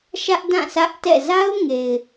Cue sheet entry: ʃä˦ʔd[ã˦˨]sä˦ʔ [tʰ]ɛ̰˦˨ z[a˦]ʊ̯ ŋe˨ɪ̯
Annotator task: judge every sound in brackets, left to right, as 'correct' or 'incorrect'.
correct, incorrect, correct

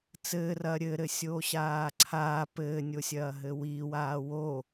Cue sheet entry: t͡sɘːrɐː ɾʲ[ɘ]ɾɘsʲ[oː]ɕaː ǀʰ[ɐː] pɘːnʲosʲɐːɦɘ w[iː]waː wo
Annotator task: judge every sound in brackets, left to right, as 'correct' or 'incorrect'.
correct, correct, incorrect, correct

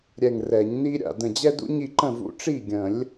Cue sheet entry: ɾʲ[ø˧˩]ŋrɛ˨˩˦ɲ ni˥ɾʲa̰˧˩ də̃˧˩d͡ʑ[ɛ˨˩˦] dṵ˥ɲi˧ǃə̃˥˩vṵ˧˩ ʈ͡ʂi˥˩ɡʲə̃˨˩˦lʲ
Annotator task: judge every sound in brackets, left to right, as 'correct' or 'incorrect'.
incorrect, incorrect

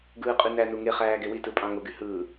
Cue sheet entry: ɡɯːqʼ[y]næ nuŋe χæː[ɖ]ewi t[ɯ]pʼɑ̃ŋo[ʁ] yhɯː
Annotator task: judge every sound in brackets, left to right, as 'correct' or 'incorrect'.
correct, incorrect, correct, incorrect

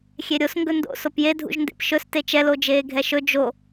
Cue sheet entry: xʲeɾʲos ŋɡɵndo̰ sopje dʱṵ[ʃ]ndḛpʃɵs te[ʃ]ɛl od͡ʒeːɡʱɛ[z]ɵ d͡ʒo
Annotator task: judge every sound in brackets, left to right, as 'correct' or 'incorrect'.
incorrect, incorrect, incorrect

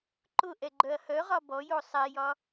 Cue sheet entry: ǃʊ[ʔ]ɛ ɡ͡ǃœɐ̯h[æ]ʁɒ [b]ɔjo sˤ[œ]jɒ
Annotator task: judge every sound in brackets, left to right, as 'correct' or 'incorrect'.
correct, incorrect, correct, incorrect

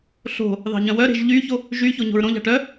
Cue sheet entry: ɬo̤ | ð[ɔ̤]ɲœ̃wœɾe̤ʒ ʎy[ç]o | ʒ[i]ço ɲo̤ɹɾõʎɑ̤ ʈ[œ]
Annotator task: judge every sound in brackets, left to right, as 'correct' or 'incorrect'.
incorrect, correct, incorrect, correct

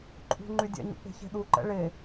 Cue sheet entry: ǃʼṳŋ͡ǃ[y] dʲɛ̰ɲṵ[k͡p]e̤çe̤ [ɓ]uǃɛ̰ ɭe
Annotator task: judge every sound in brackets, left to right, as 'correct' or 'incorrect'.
correct, correct, incorrect

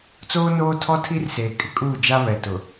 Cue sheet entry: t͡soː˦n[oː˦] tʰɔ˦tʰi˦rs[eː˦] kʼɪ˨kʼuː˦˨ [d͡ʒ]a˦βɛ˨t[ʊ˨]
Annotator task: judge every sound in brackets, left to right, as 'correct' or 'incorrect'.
correct, incorrect, correct, correct

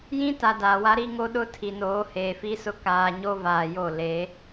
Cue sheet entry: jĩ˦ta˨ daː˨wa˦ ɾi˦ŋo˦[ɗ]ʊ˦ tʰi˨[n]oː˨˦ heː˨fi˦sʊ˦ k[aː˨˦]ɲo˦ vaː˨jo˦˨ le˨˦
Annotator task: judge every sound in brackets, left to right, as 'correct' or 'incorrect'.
correct, correct, incorrect

